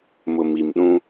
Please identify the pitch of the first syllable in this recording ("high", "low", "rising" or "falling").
low